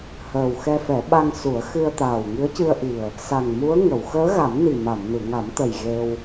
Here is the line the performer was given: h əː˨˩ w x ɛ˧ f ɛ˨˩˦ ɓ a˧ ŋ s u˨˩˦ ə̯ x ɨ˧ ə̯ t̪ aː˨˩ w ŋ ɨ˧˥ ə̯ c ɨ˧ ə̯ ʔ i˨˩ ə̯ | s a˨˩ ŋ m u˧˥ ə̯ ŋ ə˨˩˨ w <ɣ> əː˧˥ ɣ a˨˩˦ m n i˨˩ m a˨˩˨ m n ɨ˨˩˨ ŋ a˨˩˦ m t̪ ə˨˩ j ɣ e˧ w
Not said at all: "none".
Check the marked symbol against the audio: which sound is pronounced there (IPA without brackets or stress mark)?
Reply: x